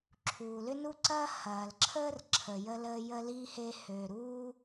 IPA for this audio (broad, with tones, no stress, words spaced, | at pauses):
ǁʰuː˩lʏ˥nu˥ ǀɐ˥hɐː˩lǁʰəː˥r ǁʰə˩jə˥ləː˥ jə˥li˥ he˥ hø˩ɾuː˥